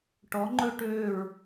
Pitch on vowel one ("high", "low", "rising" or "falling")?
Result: rising